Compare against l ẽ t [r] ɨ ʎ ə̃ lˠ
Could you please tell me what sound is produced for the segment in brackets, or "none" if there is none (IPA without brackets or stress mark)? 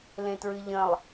ɹ